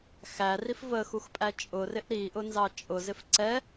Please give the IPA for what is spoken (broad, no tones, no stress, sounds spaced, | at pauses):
x æ r i f v ə x u x pʼ æ t͡ʃʼ ʊ r ɪ ʔ ɾ i ʔ ʊ n z ɑ t͡ʃʼ ʊ z ɪ f ǀ ɛ